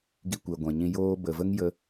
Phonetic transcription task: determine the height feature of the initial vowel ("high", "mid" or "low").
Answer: high